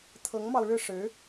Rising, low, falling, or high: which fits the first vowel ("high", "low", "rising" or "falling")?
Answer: rising